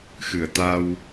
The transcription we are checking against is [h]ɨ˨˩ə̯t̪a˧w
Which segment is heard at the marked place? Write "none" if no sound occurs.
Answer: x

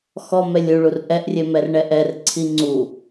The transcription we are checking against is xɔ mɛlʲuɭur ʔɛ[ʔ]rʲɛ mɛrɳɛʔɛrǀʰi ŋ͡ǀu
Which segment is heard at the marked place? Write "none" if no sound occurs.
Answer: ʔ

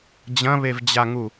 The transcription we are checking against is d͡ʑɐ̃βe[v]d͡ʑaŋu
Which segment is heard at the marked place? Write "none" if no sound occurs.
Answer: v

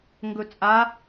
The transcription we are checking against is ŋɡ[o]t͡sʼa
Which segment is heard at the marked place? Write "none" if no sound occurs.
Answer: ɵ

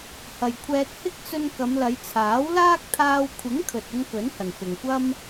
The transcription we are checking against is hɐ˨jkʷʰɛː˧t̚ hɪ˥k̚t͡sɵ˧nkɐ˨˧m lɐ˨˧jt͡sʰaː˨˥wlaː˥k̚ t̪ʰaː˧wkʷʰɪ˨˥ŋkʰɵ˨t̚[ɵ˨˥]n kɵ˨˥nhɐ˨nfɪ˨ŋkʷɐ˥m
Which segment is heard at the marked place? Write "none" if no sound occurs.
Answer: ɵ˧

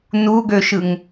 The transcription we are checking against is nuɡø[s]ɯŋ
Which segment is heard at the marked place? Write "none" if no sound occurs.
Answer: ʃ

